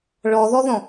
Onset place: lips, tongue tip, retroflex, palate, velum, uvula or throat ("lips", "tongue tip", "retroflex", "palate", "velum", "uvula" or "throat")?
retroflex